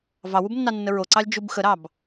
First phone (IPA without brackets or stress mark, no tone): v